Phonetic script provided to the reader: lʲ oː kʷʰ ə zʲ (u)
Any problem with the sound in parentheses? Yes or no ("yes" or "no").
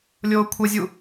no